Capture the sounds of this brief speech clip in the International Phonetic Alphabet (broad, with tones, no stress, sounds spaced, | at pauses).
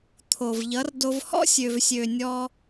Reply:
t̪ʰ o˨ v ʎ ʌ˨˦ r d o˧ v h ɔ̰˦ sʲ ø˨ v sʲ ø˨ nʲ ɔ˧